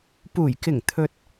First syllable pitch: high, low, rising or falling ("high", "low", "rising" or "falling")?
low